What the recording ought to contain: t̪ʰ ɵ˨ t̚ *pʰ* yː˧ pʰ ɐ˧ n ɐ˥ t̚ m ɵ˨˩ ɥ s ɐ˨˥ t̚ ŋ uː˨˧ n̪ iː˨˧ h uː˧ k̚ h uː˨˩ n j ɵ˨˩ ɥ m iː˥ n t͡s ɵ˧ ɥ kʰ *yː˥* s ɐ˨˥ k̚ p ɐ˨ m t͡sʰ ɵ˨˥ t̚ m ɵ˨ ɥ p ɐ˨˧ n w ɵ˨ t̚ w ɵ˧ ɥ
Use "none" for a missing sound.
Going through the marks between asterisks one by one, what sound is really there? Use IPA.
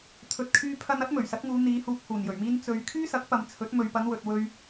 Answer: kʰ, yː˥

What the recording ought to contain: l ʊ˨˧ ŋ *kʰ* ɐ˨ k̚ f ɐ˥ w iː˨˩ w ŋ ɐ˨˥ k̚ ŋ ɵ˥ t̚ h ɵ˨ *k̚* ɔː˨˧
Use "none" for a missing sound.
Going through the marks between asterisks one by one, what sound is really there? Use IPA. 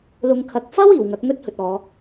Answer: kʰ, t̚

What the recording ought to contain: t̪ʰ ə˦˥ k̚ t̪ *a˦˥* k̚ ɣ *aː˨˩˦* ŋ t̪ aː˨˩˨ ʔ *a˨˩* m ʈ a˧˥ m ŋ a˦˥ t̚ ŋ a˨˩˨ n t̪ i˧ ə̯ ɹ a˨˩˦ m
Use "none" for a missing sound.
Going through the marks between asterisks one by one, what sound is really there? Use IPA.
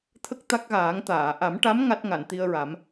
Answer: a˦˥, aː˨˩˦, a˨˩˦

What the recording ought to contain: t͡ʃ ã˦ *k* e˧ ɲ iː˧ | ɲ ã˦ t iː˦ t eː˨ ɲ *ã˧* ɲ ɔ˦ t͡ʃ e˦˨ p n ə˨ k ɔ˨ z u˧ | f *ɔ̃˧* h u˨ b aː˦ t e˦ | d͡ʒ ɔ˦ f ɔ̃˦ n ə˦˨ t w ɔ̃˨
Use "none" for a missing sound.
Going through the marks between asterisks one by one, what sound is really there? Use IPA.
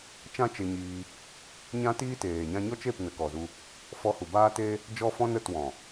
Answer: t͡ʃ, ã˧, ɔ˧

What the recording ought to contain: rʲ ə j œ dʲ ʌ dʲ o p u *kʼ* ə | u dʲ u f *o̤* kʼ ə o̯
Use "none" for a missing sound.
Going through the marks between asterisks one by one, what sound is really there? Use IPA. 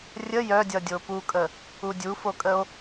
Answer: kʼ, o

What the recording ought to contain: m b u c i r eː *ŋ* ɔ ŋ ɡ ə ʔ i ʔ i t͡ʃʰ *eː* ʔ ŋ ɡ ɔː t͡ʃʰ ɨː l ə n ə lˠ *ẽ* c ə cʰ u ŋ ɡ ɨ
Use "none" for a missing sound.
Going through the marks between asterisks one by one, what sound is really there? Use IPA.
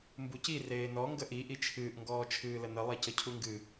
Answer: n, ɨː, e

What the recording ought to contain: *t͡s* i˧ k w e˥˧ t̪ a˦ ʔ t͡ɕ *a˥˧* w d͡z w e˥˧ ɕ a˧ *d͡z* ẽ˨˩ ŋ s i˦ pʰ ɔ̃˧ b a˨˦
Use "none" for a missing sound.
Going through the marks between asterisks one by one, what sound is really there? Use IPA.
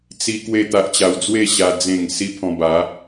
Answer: t͡s, a˧, d͡z

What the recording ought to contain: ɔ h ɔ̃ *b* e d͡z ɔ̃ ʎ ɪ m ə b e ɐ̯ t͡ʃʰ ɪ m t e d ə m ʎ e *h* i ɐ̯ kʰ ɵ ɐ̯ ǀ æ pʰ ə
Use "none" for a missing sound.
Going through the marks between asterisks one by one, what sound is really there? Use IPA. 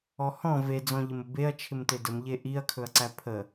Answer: v, ʔ

